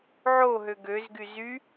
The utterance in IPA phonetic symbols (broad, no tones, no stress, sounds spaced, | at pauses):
ʕ o ɦ ø ɡ ø z ɡ y z y